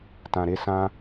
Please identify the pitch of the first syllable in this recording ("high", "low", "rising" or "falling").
low